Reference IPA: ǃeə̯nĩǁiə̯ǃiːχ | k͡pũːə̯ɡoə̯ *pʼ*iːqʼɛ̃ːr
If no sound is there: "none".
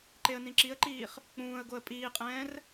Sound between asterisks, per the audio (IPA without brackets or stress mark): pʼ